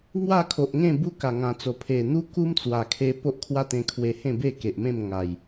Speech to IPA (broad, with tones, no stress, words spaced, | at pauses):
ŋwa˥˧kʰo˨ʔŋẽ˥˧ bu˦ka˨˩ŋã˨˩t͡so˨˩ pʰe˨˩n̪u˦ku˦m t͡swa˨˩kʰe˧ po˦ʔkʰwa˦t̪ẽ˧kʰwe˧ hẽ˥˧be˥˧ke˨ʔ mẽ˥˧mŋa˨˩j